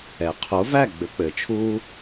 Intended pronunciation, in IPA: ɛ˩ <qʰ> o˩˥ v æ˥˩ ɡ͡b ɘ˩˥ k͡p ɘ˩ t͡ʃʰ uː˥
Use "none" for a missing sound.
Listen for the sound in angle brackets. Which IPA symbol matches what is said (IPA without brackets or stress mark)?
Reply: qʰ